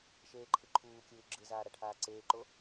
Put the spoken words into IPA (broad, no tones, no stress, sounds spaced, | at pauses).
ʃ eː ǃʰ ɯ ǃʰ uː kʲ ɯː ɡ͡ǁ ɯ z aː ɾ a ʈʰ aː ǀ eː ǃ o